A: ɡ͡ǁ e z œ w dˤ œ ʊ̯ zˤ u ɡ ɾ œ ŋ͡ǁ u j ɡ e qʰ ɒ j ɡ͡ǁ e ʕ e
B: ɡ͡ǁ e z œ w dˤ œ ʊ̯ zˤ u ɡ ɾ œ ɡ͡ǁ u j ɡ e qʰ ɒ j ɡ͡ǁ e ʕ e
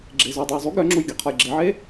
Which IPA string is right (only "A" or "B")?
A